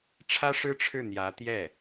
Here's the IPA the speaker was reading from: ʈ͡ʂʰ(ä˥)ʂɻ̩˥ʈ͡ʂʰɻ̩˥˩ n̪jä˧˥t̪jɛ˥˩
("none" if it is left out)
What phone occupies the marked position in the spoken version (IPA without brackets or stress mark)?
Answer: ä˥